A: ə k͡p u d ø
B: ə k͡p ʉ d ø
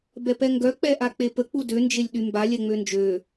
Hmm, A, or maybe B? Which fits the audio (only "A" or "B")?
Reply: A